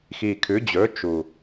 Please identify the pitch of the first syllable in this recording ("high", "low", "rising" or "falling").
low